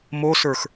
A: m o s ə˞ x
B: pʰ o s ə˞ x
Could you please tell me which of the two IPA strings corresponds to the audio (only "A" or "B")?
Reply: A